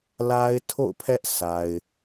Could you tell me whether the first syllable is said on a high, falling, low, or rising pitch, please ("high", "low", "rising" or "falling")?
high